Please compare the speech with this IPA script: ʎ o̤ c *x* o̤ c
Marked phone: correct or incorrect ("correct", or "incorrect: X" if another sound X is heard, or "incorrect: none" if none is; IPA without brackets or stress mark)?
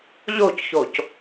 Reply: incorrect: ç